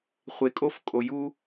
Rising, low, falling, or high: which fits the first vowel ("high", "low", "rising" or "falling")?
low